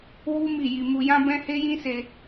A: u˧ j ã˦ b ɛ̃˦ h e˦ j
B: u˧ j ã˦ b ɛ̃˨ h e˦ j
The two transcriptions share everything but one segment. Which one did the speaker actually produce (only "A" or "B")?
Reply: A